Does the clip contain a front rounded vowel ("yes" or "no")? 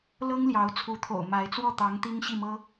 no